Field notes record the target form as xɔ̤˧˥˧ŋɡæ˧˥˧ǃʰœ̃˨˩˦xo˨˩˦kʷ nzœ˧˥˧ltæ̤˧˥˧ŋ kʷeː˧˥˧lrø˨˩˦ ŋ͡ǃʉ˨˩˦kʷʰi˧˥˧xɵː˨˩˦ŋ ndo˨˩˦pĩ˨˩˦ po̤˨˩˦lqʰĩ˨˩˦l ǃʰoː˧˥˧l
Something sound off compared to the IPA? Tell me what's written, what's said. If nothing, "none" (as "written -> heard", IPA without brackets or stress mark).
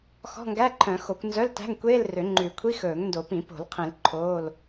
none